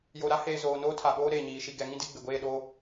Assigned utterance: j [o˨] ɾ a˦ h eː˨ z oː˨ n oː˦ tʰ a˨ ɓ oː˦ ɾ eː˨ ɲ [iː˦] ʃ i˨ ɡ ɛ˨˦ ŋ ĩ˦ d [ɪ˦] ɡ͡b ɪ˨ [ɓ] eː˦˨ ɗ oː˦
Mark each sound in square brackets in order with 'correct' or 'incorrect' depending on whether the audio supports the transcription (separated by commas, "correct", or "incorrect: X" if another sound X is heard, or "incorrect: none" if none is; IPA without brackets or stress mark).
correct, incorrect: iː˨, correct, incorrect: ɡʷ